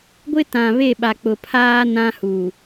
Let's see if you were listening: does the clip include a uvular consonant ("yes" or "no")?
no